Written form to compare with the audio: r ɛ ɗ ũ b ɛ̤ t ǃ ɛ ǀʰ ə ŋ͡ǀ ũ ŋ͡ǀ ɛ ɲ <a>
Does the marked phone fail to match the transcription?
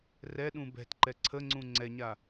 no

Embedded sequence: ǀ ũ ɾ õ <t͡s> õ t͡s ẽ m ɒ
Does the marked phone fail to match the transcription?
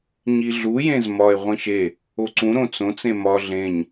no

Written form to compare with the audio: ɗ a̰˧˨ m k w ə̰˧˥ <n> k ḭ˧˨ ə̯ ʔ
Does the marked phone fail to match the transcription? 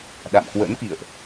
no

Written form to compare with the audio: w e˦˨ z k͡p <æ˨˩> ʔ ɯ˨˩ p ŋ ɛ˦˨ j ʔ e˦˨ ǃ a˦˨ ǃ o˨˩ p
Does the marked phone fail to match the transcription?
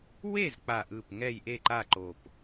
yes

